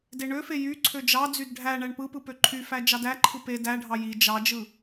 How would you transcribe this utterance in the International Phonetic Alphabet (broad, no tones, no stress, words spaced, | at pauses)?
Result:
deɳøfe jy ǀʰød͡ʒɑd͡zyd ɖʱæ ɳæɳpɯpɯ pøǃʰyfæ d͡ʒɑdæǃʰɯ pe dæɖʱɑ ji d͡ʒɑd͡ʒɯ